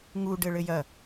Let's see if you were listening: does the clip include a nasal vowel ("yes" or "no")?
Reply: no